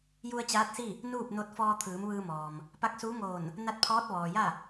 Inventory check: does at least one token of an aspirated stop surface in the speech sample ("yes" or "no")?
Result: yes